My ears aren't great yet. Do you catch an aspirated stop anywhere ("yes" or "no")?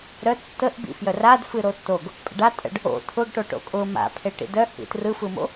yes